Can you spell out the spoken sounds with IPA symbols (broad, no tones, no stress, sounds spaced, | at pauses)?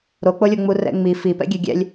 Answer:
ɾ o k͡p o lʲ o ŋ͡m u r ɛ̰ ŋ͡m i f i p ɛ̰ ɡʲ ɛ ɡʲ ɛ̰ lʲ